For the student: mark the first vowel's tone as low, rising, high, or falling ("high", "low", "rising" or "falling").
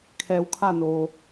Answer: low